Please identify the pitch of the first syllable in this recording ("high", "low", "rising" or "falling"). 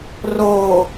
low